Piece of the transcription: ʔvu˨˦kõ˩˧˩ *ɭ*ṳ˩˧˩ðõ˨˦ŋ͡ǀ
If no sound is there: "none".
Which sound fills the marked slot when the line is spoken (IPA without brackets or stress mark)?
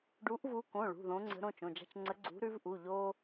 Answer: ɭ